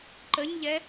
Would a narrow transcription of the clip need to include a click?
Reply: yes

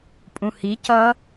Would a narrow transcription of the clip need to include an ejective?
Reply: yes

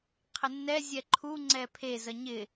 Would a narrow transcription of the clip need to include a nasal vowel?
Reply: no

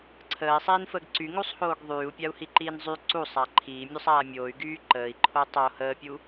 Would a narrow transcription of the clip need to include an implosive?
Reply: no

